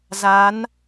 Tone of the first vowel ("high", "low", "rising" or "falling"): rising